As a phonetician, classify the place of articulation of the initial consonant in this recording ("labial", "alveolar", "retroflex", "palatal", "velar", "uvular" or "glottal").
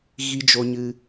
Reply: velar